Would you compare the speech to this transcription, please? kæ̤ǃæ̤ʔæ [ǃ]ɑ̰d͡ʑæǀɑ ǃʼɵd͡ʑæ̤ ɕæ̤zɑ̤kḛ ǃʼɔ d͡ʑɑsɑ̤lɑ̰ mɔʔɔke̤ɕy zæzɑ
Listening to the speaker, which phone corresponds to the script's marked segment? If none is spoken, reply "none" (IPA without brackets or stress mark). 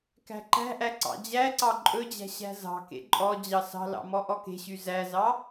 ǀ